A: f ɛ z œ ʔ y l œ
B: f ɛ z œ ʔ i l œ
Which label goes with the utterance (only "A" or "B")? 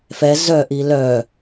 B